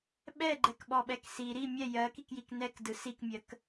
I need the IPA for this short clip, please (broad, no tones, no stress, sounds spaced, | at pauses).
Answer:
ɓ ɛ ɡ͡ǃ ɛ k ɓ ɔ ɓ ɛ k s i ɾ i mʲ ɛ j ɜ k i k j i k n ɛ k d ɯ s i k mʲ ɜ k